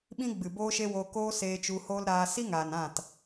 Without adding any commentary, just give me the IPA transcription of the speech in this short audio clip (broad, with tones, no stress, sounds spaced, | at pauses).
ɓ ĩ˦ ɡ͡b ɨ˨ b oː˦ ʃ e˦ w oː˧ k oː˦ s eː˧ t͡ʃ u˧ h oː˦ l ɾ aː˧ s i˦ ŋ aː˨ n ã˦˨ t